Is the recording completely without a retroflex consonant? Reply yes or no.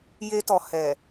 yes